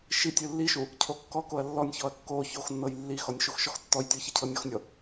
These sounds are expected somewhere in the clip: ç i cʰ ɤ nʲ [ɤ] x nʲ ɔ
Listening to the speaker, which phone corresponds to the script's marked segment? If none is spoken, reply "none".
ɔ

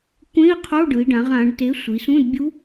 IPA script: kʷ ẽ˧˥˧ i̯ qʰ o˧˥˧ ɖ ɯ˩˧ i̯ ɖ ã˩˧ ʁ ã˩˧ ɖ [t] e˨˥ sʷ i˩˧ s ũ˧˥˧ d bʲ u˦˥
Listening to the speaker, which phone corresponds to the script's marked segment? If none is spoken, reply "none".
t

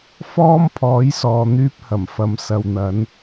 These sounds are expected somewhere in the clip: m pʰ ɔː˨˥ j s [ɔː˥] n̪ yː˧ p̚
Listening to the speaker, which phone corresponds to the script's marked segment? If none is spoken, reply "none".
ɔː˨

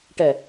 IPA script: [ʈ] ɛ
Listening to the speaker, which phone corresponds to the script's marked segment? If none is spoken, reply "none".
ʈ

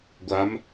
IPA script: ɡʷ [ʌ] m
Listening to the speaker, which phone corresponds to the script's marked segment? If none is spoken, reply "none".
a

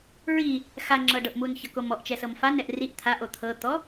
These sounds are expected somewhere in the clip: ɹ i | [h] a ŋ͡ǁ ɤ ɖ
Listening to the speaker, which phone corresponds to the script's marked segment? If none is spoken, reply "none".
x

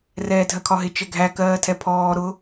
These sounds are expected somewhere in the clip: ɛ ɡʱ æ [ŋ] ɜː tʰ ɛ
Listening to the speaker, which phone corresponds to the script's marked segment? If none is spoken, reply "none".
k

